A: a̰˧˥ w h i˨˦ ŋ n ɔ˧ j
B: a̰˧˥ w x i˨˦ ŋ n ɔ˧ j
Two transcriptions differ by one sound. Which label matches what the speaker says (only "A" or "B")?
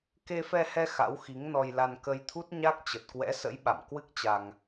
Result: B